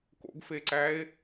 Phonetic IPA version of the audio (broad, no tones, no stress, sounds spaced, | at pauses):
k o̰ ɡ f e ǀ æ e̯